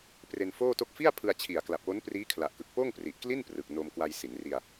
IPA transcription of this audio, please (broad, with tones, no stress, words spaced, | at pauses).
pre˧n foː˥˩to˥˩k̚ fi˥˩a̯pʰɯ˧a̯t͡ɕʰi˨˩a̯ kla˨˩p̚wo˦˥n priː˦˥kʰla˨˩ʔkɯ˨˩k̚poː˥˩ŋ pri˨˩ʔkli˥˩n prɯ˨˩k̚no˧m kwa˧jsi˩˦nri˧a̯